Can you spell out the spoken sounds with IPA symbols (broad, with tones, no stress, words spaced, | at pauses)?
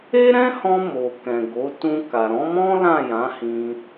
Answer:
e˦ɾɛ̃˦hɔ̃˧ mo˨kɛ̃˨ɡo˨˦ tũ˧ka˨ ɾɔ̃˨˦mɔ̃˦ lã˦˨jã˨˦hĩ˧